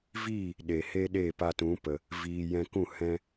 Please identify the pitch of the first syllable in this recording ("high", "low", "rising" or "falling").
falling